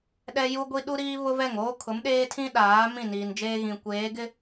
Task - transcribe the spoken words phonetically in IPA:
ɗ ɛ˦ j u˦ ɡʷ i˦ ɗ u˦ ɾ iː˦ β ʊ˦ v ɛ˦˨ ŋ oː˦ kʰ ʊ˨˦ m ɗ eː˦ tʰ ĩ˦ ɗ aː˨˦ m ĩ˦˨ n iː˨ n d͡ʒ eː˦ ɣ ĩ˨ kʷ eː˨˦ ɡ ɪ˦

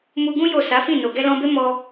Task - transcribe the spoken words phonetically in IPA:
m u˧ ɡ ũ˦ j o˦˨ s a˨˦ f ĩ˦˨ n o˨ ɡ ɛ˧ l ɔ̃˧ b e˦ m ɔ˧

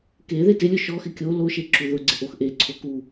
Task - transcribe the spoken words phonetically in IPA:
k e ð e t ɪ lʲ ʊ ʃ ɔ x ɪ kʲ o l o ʃ e ǁ u ð ʊ ɡ͡ǀ ɪ ʔ o x ʔ e ǀʰ o k u

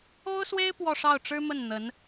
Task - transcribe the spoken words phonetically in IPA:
o˥ ʊ̯ s w e˥ ɪ̯ p w ɔ˥˧ ʂ ɑ˥˩ ʊ̯ ʈ͡ʂ ɻ̩˥ m ə˥˩ n n̪ ə˧˥ n

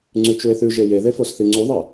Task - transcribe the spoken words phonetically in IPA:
ŋ͡ǀ ʉ t͡ʃ u e̯ θ ʉ ʒ e j e ð e f o s θ i ŋ͡ǀ u ðˤ ɐ

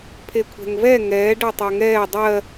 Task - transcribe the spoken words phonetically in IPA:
pʰ e kʷʰ ɛ̤ ŋ v ɛ ŋ ɛː ɖ ɜ tˤ ɜ ŋ ɛː dˤ ɜ

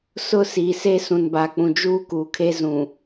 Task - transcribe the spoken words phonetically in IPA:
s ʊ˦ s iː˨ s e˦ s ũ˨ n b a˨ k͡p ũ˨ d͡ʒ uː˦ k uː˨ kʰ e˦ z ũ˨

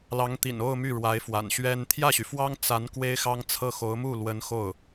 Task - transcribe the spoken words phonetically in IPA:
l ɑ˧˥ ŋ t̪ ḭ˨˩ n o˥˧ ʊ̯ m y˥˩ ɻ w a˧˥ ɪ̯ f w a̰˨˩ n ɕ ɥ ɛ˥ n t̪ʰ j ä˥˩ ɕ y˩ f w ɑ˥ ŋ t͡s a˧˥ n k w e˥ ɪ̯ x ɑ˥ ŋ t͡sʰ ɤ˥˩ x o˧˥ ʊ̯ m u˥˩ l w ə˧˥ n x o˥˩ ʊ̯

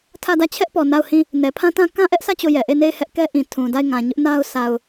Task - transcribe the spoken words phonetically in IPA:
tʰ ä˦˨ d ä˦˨ t͡ɕʰ ɛ˦ ʔ p ɔ˨ n a˦˨ ʊ̯ h ĩ˦˨ | n ɛ˨ pʰ ã˦ t ã˦ k ã˦ ʔ ɛ˦ ʔ s ä˦˨ t͡ɕ o˦˨ j ɛ˨ ʔ e˦˨ n e˦˨ ɪ̯ h ɛ˦ ʔ k ɛ˦ ʔ ĩ˨ tʰ ũ˨ d a˦˨ ɪ̯ ŋ ã˨ ɲ ʊ˦ ʔ n a˦ ʊ̯ s a˨ ʊ̯

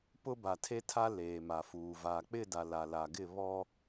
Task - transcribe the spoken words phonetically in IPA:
p ʊ˦ b a˨ tʰ e˦ tʰ a˦ l eː˨ m a˨ f uː˨ v aː˨ k͡p ɪ˦˨ d a˨ l a˨ l a˨ ɡ ɪ˦˨ β ɔ˦

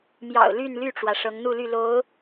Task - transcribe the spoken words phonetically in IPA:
m j ɑ̰˨˩ ʊ̯ l y˥˧ n l y˥˩ ʈ͡ʂ w ä˩ ʂ ɤ˧˥ ŋ n̪ u˥˧ l y˥˩ l o˧˥ ʊ̯

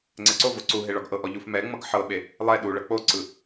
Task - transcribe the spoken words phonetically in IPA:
ŋ͡ǀ ɛ ǀ o v o ǀ u ɦ e ɭ ɔ ɡ ʔ ɤ ʔ ɔ ʎ u f m ɛ ŋ͡m ɤ ɡ ħ ɤ ɓ e | lˠ ɛ ɗ u ɭ ɤ k͡p o ǀ ɯ

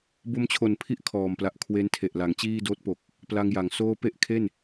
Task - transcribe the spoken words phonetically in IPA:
b o˧ m t͡ɕʰ o˨˩ n pʰ i˦˥ ʔ kʰ ɔː˨˩ m p l a˨˩ ʔ kʰ w e˦˥ n tʰ e˨˩ ʔ l a˩˦ ŋ t͡ɕ iː˥˩ d oː˦˥ t̚ p o˨˩ k̚ | p l a˧ ŋ j a˩˦ ŋ s oː˥˩ p e˥˩ ʔ kʰ e˥˩ n

